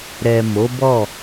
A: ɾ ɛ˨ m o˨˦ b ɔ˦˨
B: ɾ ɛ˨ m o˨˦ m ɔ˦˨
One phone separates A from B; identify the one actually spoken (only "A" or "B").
A